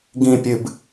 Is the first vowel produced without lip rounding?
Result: yes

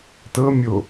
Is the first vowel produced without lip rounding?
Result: yes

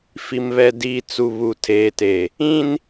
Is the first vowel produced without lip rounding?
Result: yes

